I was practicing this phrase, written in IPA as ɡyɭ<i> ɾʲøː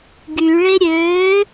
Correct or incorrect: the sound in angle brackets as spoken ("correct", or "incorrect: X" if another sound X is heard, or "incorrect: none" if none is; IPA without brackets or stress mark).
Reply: incorrect: e